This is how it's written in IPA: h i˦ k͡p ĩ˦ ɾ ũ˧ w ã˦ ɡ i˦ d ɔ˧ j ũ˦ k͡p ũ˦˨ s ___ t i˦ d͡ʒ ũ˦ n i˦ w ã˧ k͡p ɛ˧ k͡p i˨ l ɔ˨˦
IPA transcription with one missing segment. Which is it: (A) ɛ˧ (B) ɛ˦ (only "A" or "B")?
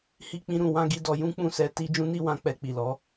A